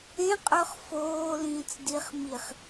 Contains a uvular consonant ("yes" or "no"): yes